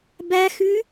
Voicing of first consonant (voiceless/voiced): voiced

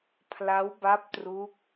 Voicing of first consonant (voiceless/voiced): voiceless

